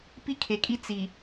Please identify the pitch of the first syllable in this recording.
high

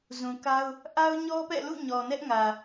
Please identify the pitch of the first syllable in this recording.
low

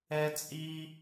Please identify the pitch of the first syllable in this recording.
high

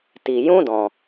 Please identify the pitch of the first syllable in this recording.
low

